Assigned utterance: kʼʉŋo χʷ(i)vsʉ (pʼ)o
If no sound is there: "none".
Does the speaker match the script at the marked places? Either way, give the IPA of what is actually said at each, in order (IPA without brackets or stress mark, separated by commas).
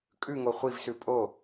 i, pʼ